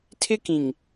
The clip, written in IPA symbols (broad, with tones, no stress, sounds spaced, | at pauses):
tʰ ɪ˦ k ĩ˨ ŋ